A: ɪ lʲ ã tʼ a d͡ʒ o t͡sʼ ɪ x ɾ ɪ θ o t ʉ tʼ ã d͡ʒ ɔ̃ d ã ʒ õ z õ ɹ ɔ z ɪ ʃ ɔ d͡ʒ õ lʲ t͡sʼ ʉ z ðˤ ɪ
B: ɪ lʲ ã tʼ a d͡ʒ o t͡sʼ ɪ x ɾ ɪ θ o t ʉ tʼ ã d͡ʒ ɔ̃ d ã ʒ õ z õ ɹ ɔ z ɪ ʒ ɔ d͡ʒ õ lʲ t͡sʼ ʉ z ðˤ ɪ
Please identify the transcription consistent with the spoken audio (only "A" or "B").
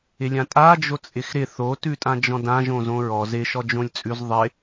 A